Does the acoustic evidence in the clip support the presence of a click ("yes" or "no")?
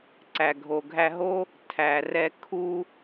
yes